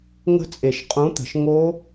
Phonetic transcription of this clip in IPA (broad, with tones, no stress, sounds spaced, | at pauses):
ŋ ə̤˦˥ t͡sʼ e˨˩˦ ʃ qʼ ũ˨˥ t̪ ə̤˨ ʃ ŋ o˦˥